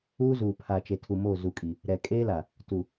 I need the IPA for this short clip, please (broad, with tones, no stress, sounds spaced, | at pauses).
uː˦ z uː˨ pʰ a˨ t͡ʃ e˨ tʰ u˨ m o˦˨ z u˨ kʼ i˨ | ɾ ɛ˨ kʼ eː˦ l a˨ | t u˨